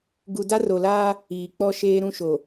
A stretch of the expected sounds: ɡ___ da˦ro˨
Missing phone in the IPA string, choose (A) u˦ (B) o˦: A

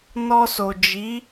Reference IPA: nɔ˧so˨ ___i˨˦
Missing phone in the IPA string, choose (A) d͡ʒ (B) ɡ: A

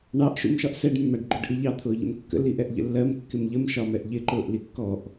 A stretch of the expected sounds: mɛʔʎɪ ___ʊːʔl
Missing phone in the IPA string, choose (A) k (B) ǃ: B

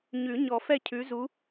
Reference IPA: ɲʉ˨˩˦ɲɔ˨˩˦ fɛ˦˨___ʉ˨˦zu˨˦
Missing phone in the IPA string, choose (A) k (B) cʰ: B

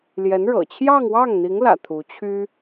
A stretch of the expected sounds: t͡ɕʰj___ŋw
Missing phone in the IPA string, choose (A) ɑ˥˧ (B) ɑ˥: A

